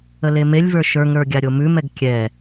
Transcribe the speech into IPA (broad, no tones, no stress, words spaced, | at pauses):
əlemelʲvə˞ ʃə˞ŋɾə˞ ɡʲaɾʲomʉmɛɡ kʲɛ